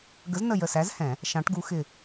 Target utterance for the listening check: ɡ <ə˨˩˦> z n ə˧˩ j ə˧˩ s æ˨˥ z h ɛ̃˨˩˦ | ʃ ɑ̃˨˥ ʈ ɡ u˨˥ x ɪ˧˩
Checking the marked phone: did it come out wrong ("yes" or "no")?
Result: yes